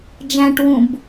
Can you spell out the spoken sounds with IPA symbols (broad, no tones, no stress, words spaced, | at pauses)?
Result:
d͡ʒæ̃ʈwũb